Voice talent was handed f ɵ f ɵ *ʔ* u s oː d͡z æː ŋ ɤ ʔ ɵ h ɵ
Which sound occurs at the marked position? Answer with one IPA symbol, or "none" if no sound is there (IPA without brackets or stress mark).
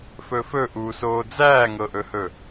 ʔ